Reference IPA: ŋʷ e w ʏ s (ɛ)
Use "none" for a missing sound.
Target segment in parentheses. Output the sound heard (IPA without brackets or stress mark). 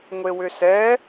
ɛ